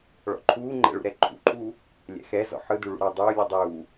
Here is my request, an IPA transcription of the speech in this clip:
ɭɔ̰ǃʰuːŋ͡ǃɛ̰ ɭṵɾɛǃʰṵǃʼuː | lʲɛ̰xɛzɔ̰ ħɯdu ɭṵɾɑdˤuːlʲu dˤuː

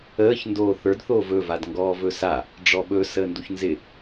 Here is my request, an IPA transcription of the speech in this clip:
əːç ndoːθə˞d θoːvɵ vadŋɡɔːvɵsa | ɖ͡ʐɔɓɵ səːnduçnzɪ

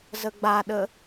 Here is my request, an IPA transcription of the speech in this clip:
zəɡ͡baɗə

